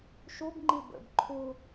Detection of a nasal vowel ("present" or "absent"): absent